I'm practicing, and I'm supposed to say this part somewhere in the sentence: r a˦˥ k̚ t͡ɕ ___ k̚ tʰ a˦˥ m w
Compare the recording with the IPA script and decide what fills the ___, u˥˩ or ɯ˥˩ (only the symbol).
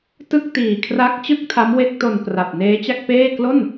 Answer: ɯ˥˩